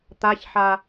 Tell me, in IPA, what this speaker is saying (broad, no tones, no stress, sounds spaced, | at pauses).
t̪ a ç ħ a